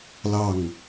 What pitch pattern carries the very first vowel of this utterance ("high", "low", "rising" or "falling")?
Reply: falling